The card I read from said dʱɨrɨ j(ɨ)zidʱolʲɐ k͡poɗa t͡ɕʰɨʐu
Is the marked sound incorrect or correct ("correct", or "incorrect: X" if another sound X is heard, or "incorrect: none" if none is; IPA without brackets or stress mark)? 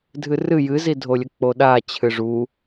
correct